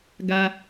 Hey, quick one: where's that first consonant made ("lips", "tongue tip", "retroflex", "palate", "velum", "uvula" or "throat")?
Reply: velum